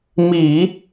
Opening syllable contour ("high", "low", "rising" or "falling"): low